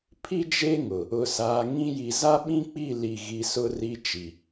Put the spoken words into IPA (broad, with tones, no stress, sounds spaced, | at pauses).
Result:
pʰ i˦ d͡ʒ e˦ ŋ ʊ˨ | ʊ˨ s aː˨ ŋ ĩ˦ j i˨ z a˦ ɓ ĩ˦ k͡p i˦˨ l i˦˨ ɣ i˦ s ʊ˦ r i˦ t͡ʃ i˨